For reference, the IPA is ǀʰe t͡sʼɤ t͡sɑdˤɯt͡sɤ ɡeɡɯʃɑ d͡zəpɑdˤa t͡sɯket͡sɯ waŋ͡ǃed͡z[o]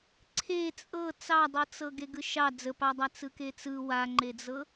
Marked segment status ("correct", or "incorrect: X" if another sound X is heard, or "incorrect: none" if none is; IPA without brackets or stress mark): incorrect: ɤ